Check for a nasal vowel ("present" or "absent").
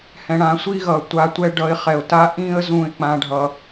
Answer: present